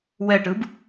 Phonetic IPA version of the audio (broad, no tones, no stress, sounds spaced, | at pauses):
w ɛ ʈ ɯ b